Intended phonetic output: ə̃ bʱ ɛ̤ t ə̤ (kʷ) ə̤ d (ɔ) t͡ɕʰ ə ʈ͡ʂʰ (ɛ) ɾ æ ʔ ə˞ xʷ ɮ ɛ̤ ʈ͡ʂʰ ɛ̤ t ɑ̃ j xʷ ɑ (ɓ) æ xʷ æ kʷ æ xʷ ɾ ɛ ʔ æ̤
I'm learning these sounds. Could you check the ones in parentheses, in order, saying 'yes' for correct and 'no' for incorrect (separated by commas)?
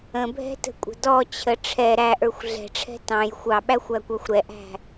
no, yes, yes, yes